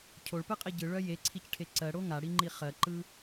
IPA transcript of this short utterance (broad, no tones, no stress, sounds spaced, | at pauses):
cʰ o ɭ p ɨ qʼ i ɟ ɯ ɭ œ j e ǀʰ i c ʈʰ e ǀ ɜ ɽ o ŋ a ɽ i ŋ͡ǃ i χ ɜ ǃ ɯ